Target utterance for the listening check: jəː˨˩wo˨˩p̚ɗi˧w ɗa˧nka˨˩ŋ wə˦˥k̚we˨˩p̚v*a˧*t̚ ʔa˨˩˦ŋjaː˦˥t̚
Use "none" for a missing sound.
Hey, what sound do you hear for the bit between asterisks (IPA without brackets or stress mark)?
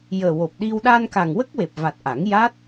a˨˩